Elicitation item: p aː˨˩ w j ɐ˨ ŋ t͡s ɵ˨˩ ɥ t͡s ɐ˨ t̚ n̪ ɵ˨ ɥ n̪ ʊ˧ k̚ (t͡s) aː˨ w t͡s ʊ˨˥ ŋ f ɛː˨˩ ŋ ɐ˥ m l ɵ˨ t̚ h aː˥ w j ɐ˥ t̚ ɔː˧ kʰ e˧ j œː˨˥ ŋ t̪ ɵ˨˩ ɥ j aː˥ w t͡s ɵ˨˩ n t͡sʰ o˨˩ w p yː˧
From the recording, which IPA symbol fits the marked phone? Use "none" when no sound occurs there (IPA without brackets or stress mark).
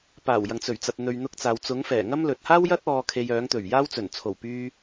t͡s